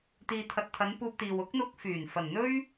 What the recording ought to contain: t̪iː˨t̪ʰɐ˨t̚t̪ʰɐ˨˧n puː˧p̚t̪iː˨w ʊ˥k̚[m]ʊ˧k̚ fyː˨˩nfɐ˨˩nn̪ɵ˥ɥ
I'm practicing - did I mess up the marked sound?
yes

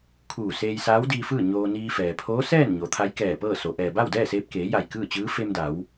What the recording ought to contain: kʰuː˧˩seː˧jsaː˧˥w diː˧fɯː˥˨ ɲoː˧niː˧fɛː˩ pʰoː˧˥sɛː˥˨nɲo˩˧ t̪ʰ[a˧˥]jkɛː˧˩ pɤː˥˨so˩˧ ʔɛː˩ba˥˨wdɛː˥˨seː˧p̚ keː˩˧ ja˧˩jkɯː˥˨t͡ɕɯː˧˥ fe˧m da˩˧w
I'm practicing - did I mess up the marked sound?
no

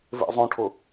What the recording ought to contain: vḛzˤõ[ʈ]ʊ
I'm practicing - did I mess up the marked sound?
yes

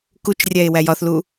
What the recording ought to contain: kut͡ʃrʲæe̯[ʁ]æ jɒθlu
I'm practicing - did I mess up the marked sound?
yes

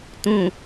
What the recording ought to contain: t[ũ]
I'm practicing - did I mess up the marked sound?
no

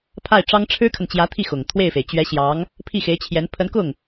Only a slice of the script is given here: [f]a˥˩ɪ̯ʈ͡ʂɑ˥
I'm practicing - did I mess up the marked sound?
yes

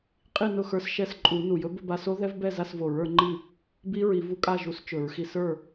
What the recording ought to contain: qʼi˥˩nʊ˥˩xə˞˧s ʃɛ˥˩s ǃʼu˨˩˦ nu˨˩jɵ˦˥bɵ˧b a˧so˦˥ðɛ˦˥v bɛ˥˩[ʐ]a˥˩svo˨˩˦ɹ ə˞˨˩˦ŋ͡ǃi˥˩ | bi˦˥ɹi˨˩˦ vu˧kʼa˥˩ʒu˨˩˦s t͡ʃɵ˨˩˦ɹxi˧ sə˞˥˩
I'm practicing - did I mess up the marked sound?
yes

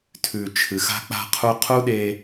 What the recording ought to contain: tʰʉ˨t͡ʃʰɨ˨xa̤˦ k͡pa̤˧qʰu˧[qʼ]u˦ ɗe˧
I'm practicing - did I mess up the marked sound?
yes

